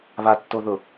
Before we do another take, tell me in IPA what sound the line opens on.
β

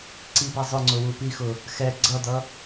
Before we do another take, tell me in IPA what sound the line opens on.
ǀ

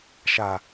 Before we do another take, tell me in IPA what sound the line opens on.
ʃ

